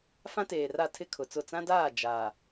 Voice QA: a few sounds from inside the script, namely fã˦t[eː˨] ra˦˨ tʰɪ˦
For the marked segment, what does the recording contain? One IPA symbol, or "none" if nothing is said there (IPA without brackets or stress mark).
eː˨